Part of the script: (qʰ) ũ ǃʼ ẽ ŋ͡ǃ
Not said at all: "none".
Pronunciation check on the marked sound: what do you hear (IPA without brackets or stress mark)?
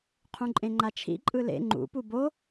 qʰ